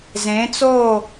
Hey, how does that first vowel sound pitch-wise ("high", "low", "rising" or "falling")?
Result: rising